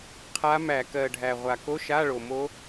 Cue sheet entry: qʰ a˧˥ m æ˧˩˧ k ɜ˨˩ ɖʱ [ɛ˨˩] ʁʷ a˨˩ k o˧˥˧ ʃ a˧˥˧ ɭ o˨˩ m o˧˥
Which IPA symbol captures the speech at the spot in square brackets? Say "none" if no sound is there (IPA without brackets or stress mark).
æ˨˩